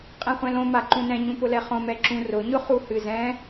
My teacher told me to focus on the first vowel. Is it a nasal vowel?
yes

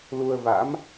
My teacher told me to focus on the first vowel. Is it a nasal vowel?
no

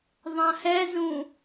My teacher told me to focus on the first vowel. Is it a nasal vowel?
yes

